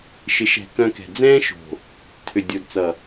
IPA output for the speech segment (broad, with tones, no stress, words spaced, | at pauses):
ʃɪ˨˦ʃɛ̤˨ kœ̃˧kɛ̤˨ d͡zɛ̃ː˦ʃo̤˨ | tʰʏ˨dʲo˨dt͡sʌ˨